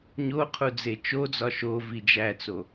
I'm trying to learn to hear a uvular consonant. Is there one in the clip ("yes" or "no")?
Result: yes